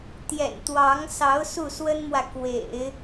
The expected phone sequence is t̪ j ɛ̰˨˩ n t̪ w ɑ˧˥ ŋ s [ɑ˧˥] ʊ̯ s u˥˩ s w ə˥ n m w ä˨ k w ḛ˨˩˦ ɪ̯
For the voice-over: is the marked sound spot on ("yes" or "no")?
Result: yes